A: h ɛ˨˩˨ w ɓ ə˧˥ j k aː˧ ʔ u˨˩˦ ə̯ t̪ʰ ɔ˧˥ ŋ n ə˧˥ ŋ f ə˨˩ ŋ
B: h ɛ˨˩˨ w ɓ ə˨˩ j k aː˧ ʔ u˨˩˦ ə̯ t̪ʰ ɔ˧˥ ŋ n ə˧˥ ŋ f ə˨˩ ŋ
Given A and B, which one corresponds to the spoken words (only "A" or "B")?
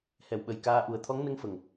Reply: B